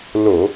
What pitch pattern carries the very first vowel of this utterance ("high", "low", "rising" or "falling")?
low